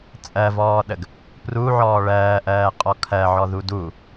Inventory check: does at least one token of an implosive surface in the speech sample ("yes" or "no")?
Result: yes